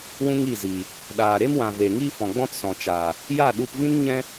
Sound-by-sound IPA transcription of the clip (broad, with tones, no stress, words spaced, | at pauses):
wũ˦ŋi˦˨ziː˨ | ɗaː˨ɾe˦mwã˨ ve˨ŋiː˦fɔ̃˨ɡ͡bɔ̃˦t sɔ̃˨t͡ʃaː˨ | ja˦˨ɗu˧pvĩ˦n ɲɛ̃˦